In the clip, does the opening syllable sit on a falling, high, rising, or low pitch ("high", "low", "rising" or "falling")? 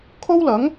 high